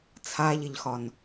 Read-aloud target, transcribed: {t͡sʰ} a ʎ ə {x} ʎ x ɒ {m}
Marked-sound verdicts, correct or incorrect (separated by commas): correct, incorrect, incorrect